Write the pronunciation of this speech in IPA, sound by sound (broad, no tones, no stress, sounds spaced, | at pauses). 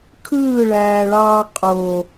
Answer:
kʰ ɯː ɭ æː ɭ ɑː qʼ o